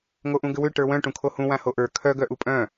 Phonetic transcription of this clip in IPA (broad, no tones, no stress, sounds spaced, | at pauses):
ŋ o ʔ ũ ɡ ʏ w ʏ ʈ ə˞ w œ̃ ʈ ũ kʰ o h ũ w ã h o ʔ ə˞ kʰ œ ɡ œ ʔ u pʼ œ̃